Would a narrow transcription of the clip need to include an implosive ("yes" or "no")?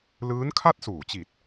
no